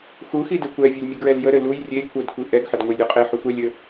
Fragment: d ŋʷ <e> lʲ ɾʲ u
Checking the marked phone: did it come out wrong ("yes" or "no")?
yes